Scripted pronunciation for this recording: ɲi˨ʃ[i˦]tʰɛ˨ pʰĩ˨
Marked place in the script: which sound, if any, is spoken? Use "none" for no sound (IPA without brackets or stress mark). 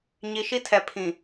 i˦